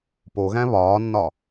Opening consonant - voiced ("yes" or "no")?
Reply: no